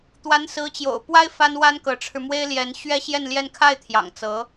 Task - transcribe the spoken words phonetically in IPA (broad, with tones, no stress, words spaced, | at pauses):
t̪wa˧˥nsɹ̩˧˥t͡ɕjo̰˨˩ʊ̯pwa˥ɪ̯ fa˥nwa˥nkɤ˧˥ʈ͡ʂʰɻ̩˧ mwe˥ɪ̯ljɛ˧˥n ɕɥɛ˥ɕjɛ˥˧nljɛ˥˧n kʰa˥˩ɪ̯ t̪ʰjɑ̰˨˩ŋt͡sɤ˧˥